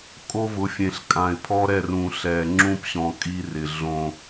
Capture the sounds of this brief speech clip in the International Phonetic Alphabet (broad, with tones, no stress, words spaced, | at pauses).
kʼo˦vʊ˨˦fʲẽ˨ɬkʼã˨ɪ̯ pʰɔ˦ɾɛ˦˨rũ˨ ɬɛ˨ ŋ͡ǁũ˦pɕɔ̃˨ kʼi˦rɪ˨ ɮõ˦